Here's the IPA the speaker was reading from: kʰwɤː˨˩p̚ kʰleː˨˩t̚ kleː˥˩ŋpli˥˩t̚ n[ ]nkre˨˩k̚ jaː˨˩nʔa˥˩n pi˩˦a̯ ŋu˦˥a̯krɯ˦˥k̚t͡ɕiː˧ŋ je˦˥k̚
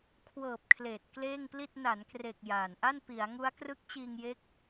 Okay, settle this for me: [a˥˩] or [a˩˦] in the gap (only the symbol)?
a˩˦